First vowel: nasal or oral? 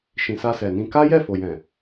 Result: nasal